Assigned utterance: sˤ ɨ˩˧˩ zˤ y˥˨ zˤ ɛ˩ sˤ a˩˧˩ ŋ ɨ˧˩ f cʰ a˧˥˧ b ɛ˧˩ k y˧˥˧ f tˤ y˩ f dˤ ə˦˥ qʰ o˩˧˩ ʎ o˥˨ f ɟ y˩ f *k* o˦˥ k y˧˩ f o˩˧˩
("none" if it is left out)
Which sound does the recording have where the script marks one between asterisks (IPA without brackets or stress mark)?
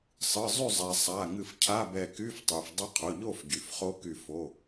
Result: χ